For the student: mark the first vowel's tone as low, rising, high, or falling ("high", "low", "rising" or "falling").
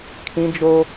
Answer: high